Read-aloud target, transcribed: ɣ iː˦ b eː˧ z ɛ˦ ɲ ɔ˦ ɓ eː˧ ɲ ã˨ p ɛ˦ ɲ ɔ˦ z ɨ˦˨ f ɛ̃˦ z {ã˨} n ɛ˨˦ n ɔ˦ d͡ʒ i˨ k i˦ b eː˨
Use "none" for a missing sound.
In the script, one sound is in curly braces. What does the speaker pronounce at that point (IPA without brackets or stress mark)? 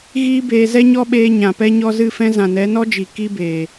ã˨